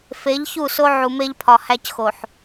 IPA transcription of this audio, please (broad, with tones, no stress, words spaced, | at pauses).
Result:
fe˨˦ʎçu˦˨so˦ ʕu˨me˦ʎpʰɒ˨ hæ˦cxo˨ħ